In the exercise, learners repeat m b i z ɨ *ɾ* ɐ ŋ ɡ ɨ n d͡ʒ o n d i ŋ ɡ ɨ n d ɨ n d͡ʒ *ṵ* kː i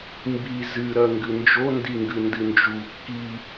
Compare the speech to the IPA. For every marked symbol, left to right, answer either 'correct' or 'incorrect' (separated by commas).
correct, incorrect